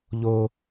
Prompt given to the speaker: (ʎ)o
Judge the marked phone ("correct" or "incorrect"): correct